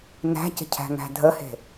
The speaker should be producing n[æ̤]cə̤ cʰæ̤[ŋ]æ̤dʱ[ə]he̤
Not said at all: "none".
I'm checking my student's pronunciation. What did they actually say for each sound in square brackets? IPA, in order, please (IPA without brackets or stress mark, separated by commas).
æ̤, ŋ, ə